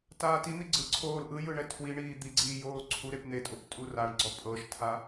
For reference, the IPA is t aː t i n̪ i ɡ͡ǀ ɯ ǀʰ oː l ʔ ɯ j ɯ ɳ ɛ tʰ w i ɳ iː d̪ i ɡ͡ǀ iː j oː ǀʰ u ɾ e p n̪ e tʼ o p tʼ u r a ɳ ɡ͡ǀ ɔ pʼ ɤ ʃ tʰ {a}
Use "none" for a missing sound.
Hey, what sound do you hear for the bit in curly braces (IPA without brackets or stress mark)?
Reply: a